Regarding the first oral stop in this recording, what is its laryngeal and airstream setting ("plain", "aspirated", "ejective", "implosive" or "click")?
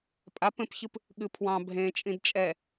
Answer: ejective